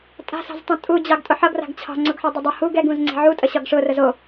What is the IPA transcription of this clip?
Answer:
tʼ a̤ s ɑ̤ z tˤ ũ tʼ u d͡ʑ ɑ ɡ tʼ ʊ ħ ʌ ɡ r a̤ ɡ t͡ɕʰ ɑ̤ ŋ͡ǀ ʊ ɡ ħ ɒ dˤ ʊ dˤ ʊ h u ɡ ɛ ɡ ũ z ŋ͡ǀ e̤ ʕ u tʼ ə ɕ ɒ ɡ ʂ ʊ r ə z o

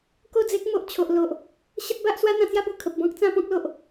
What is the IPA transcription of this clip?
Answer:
k o˥˧ d͡z e˦ k̚ m o˨ ʔ t͡ɕʰ o˨ ʔ l o˨ ʔ | ɕ ə˦ t̚ b a˦ ʔ s w a˦ n̪ ã˧ t͡s j a˦ b u˨˩ kʰ ə˨ p̚ b ɔ̃˦ k̚ t͡s ã˧ p ɔ̃˦ k̚ l o˨ ʔ

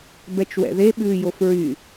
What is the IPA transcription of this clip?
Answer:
b ɛ t͡ʃ w ɛ̰ ð e ɓ ʉː j o f ɹ y

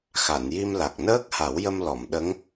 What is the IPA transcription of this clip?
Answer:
x a˨˩˨ n j i˧ m l a˨˩ k̚ n əː˦˥ k̚ h a˨˩˦ w j ə˧ m l ɔ˨˩˨ m ɗ ə˧˥ ŋ

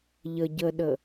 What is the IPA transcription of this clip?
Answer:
ʎ ə ɟ ə ɗ ə

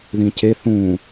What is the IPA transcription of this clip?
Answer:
ð ĩ c e θ ũ

